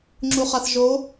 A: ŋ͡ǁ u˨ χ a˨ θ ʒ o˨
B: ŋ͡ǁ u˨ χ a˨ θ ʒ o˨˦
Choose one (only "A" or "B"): B